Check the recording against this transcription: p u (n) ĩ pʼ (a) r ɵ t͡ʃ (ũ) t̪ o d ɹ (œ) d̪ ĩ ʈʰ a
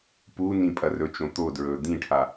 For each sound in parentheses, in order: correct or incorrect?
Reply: correct, incorrect: ɐ, incorrect: õ, incorrect: ɵ

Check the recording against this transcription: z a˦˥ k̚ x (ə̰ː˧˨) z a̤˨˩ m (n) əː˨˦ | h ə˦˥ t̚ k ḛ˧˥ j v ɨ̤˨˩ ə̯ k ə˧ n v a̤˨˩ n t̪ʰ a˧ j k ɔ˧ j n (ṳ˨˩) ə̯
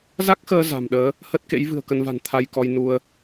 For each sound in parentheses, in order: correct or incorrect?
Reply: incorrect: əː˧, incorrect: ɗ, incorrect: u˧

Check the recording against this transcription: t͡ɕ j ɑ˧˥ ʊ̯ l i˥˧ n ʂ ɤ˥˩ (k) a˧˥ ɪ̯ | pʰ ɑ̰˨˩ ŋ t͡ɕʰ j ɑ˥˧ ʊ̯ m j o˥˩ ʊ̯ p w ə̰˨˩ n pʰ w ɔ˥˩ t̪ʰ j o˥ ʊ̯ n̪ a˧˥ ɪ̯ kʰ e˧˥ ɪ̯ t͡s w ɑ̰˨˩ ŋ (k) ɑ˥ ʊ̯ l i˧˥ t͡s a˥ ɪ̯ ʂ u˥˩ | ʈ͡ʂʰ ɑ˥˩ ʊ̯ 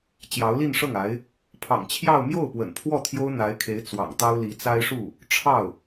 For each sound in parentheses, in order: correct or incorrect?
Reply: incorrect: ŋ, incorrect: t̪

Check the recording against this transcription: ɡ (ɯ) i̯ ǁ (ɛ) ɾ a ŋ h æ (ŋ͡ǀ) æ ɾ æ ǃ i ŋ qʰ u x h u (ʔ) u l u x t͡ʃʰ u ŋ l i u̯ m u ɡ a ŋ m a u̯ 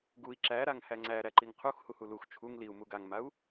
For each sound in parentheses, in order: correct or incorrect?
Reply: incorrect: u, incorrect: æ, correct, incorrect: h

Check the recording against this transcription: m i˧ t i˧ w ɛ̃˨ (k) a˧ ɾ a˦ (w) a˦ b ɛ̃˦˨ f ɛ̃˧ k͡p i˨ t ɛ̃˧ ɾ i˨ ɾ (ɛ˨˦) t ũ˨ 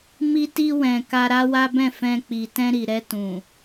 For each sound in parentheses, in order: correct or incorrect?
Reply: correct, correct, incorrect: ɛ˧

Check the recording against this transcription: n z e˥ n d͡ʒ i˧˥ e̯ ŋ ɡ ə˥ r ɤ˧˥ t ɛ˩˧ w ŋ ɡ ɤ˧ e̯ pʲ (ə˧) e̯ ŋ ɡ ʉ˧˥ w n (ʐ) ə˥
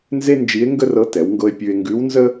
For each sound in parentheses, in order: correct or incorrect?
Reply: incorrect: ʉ˧, incorrect: z

